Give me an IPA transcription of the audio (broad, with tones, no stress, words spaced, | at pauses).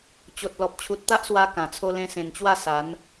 t͡ɕo˨t̚lɔ˨p̚ t͡ɕʰu˨t̚ t̪a˦ʔswa˧ kã˨˩t͡sʰo˦ lẽ˧sẽ˨˩nt͡ɕwa˥˧ sa˨˦n